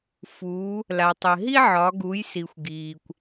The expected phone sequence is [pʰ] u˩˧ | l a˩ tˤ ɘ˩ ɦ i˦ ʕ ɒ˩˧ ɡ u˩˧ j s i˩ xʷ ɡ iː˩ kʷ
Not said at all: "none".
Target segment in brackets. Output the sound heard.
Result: f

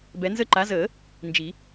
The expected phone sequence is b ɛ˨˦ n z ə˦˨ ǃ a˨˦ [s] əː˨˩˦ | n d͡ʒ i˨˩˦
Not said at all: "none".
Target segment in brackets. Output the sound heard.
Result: z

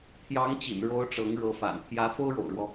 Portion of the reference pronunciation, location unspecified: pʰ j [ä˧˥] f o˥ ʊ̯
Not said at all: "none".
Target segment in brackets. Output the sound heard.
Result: ä˧˥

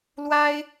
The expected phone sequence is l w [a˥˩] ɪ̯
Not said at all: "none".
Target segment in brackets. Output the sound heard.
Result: a˥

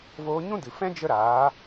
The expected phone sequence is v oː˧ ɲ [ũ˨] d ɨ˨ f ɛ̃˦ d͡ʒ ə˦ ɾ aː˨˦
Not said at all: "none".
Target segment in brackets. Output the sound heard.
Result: ũ˦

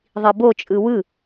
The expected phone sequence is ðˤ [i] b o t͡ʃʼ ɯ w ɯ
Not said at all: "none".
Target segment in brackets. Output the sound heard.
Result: i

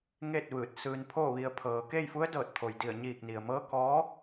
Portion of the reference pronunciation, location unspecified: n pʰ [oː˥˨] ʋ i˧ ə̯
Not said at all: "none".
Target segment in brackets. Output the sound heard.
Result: oː˥˨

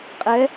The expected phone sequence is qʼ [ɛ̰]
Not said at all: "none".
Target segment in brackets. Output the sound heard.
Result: ɛ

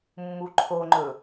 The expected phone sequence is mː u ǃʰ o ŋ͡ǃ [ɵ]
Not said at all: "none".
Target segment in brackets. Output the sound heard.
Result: ɵ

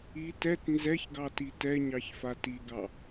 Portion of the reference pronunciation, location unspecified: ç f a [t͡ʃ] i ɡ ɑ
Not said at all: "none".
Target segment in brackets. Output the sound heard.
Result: t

